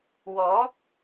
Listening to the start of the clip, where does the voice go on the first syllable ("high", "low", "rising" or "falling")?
rising